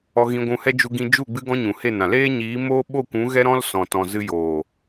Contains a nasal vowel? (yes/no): yes